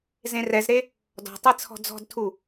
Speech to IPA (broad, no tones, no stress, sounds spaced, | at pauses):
z ẽ r ɛ z ɾ e | d ɔ̤ tˤ e t͡sʰ ɔ̤ d͡z ɔ̤ d tʰ u